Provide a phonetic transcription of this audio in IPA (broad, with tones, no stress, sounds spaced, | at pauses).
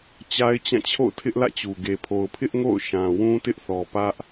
t͡ɕ a˦ ɪ̯ t͡ɕ ã˦˨ t͡ɕʰ o̰˦˨ ʊ̯ tʰ ɪ˦ ʔ l ä̰˦˨ t͡ɕ u˨ ɡ e˨ pʰ o˨ ʊ̯ pʰ ɪ˦ ʔ ŋ o̰˦˨ ʊ̯ ʃ ã˨ w ũ˦ t ɪ˦ ʔ θ ɔ˨ p ä˦ ʔ